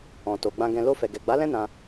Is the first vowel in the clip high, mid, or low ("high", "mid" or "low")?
mid